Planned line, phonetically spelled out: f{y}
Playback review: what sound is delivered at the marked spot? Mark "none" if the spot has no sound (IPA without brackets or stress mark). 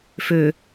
ø